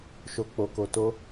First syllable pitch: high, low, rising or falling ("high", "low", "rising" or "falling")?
low